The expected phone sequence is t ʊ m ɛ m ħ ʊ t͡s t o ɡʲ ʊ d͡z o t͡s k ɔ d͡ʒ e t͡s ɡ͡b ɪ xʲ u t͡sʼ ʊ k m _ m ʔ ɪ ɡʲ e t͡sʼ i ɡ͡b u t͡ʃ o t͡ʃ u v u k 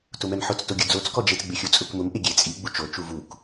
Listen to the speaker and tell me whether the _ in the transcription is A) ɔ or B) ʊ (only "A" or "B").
B